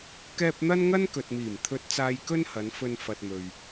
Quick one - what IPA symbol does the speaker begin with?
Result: k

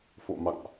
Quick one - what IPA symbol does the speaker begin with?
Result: f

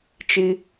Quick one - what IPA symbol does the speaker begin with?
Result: t͡ʃ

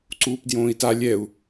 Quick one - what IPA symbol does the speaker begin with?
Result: ǀ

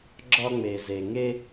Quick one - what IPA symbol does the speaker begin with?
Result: ɡ͡ǁ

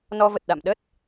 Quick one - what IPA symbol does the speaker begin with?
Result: n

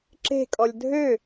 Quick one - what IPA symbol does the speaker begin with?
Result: ǁ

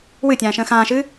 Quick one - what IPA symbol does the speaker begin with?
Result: w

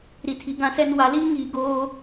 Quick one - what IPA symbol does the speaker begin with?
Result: ɾ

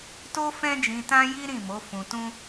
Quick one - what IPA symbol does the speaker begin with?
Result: t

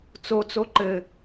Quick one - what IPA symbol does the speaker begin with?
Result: t͡s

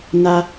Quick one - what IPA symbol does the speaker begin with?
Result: n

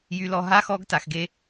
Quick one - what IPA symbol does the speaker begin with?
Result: j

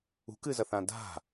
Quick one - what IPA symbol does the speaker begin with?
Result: ṳ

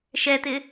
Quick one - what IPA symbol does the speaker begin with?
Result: ʃ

